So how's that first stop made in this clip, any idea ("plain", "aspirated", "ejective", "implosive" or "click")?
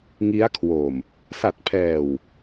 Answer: aspirated